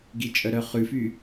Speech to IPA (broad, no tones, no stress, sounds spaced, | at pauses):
ɡ i t͡ʃʼ œ ɾ œ χ ʉ f y